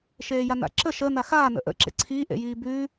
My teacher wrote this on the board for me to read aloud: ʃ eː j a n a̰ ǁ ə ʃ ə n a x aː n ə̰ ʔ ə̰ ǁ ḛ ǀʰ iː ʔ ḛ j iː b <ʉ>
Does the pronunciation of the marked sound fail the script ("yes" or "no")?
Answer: no